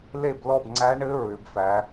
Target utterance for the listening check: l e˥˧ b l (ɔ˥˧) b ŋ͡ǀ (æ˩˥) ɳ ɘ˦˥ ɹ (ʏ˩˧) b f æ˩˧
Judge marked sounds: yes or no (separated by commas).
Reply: yes, no, yes